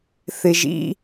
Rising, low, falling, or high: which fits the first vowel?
low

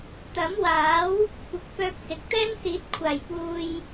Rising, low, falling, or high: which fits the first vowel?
rising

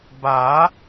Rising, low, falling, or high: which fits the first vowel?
rising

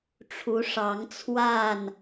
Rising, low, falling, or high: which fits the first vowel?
rising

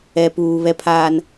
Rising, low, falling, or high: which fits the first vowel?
low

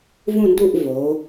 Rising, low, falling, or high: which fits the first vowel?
falling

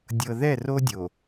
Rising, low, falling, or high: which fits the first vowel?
low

